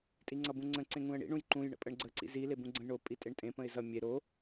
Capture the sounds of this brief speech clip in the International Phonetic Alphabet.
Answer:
tʼ i ŋ͡ǀ ʌ b ũ ŋ͡ǀ ə̃ ǀ ẽ ŋ ũ ə̯ ɳ ḭ ɳ ũ j ǃ ũ j ɳ ə̰ pʼ ə ɳ ɡ͡ǀ ə ǀ ḭ z i l e b ũ ɡ͡ǀ ə̃ j ɳ o pʼ i tʼ e ɳ tʼ ẽ p ə̃ ɪ̯ z ʌ mʲ e ɾ o

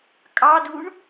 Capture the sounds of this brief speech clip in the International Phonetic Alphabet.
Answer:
kʼ ɑ d u ɳ

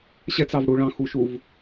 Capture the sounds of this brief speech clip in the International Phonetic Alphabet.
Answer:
ɕ ɛ t͡s ɑ v ɽ u ɭ ɑ̃ x u ʃ u v

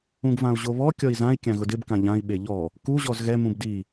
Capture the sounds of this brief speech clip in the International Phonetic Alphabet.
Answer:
ũ ɡ v ã u̯ ʑ o β ɔ kʲ ɔ i̯ z ã i̯ kʲ ã ɣ ʊ d ɪ b k ã ʎ ã i̯ ɓ e ʎ ɔ | k u ʑ ɔ z ɣ ɛ m ũ b d i

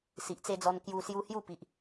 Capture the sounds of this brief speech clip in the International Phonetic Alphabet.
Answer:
s i˨ ʔ t͡s e˧ d͡z ɔ˧ n k j u˧ s j u˧ h j u˥˧ p i˨ ʔ

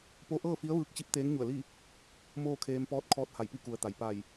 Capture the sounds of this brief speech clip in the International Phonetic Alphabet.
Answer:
p o˧ ʔ ɤː˥˨ f i˧˥ ə̯ ʋ ɯː˧ k̚ t͡ɕ i˧˥ p̚ t̪ eː˧˥ ŋ ɲ u˧˩ ə̯ l i˥˨ | m oː˥˨ kʰ eː˧ m p ɔː˧ t̚ kʰ ɔː˧˥ t̚ h a˧˩ j p i˥˨ k u˩ ə̯ t̪ a˩ j p a˧˩ j

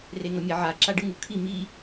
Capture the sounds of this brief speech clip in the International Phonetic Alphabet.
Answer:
r e ŋ ʌ mʲ e ʕ a ǁ a ɖ ɯ ŋ u kʰ i m i

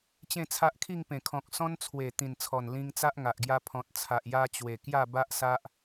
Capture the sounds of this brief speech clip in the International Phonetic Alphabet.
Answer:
t͡ɕ ẽ˥˧ t͡sʰ a˦ ʔ kʰ i˥˧ ŋ p ẽ˨˩ kʰ ɔ̃˨ k̚ s ɔ̃˧ n t͡sʰ w e˨˩ t̪ ĩ˨˩ n t͡sʰ ɔ˨˩ n l ĩ˧ ŋ t͡s a˦ ʔ ŋ a˨ ʔ ɡ j a˧ pʰ ɔ̃˨ t̚ t͡sʰ a˨ ʔ j a˧ t͡ɕ w e˨˩ k j a˥˧ b a˦ ʔ s a˦ ʔ

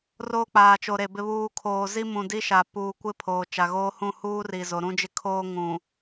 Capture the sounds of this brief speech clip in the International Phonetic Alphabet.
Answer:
r oː˦ k͡p aː˨ t͡ʃ o˨ ɾ e˨ b ɪ˨ β uː˨ kʰ oː˨ z i˦ m ũ˨ d i˦ ʃ a˨ p uː˨ kʷ ɪ˦ pʰ oː˨ t͡ʃ a˨ ɣ oː˦ h ũ˦˨ h uː˦ r i˨ z o˨ ɾ ũ˦ d͡ʒ ɪ˦ kʰ oː˦ ŋ ũ˨

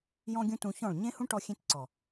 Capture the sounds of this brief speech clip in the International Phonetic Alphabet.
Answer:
j ɔ̃˦ ɡʲ ũ˦ t ũ˧ ç ɔ̃˦˨ ɭ ɲ ẽ˦ h ũ˦ ʈ ɔ˧ xʲ ẽ˧ t ǀ ɔ˨

